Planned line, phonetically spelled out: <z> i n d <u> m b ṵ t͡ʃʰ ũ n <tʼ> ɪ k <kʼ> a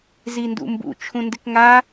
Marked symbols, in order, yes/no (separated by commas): yes, no, no, no